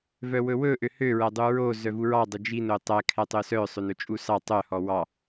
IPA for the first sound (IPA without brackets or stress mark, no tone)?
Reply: v